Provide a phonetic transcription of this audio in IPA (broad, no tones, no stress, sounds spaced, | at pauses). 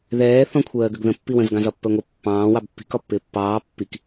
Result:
ð ɛː θ ɔ̃ kʷʰ ɜː ɡ ə ɡ ð ə̃ pː i w ə̃ z ɡ ɑ̃ z ɒ pː ɜ ŋʷ ɪ pː ɑ̃ː w ɑ b pː i̤ k ɒ pː ɪː pː ɑː pː i k